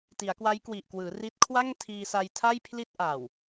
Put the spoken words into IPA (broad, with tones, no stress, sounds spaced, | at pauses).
t i˩˦ a̯ k w a˦˥ j k w i˨˩ ʔ k w ɯː˩˦ r i˦˥ t̚ kʰ w a˥˩ ŋ tʰ iː˧ s a˧ j tʰ a˥˩ j pʰ l i˥˩ t̚ ʔ a˨˩ w